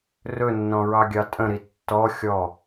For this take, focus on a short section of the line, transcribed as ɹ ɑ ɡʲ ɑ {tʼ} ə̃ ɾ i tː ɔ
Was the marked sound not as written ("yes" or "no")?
no